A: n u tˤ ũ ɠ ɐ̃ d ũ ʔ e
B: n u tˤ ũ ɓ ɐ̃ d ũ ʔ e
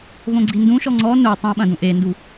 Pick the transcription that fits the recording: B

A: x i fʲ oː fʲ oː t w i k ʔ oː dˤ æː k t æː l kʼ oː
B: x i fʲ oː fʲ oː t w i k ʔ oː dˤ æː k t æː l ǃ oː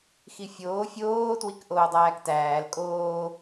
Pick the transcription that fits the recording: A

